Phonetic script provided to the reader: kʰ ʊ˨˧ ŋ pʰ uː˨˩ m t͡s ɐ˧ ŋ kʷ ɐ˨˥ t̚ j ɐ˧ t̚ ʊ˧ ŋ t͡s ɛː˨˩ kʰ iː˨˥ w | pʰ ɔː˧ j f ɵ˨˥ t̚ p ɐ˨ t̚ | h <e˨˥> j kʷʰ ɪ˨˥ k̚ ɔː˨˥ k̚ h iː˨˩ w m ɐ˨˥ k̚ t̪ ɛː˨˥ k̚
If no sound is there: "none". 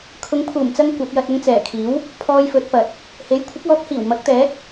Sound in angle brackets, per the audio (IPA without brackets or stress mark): e˨˥